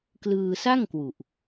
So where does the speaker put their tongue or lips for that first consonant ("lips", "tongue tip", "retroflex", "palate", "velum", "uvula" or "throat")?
velum